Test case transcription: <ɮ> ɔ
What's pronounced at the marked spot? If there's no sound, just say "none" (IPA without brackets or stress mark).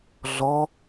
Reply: ɮ